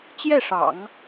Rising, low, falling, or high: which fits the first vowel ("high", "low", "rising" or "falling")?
falling